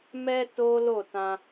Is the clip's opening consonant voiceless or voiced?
voiced